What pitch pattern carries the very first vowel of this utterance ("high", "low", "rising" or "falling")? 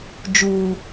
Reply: low